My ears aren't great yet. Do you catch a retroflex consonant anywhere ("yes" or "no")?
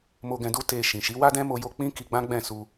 no